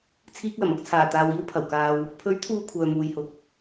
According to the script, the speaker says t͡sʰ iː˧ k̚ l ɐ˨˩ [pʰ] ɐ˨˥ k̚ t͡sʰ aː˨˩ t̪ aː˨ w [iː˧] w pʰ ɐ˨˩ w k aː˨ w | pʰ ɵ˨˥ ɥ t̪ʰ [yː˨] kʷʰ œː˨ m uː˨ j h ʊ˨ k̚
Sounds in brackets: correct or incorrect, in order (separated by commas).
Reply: incorrect, correct, incorrect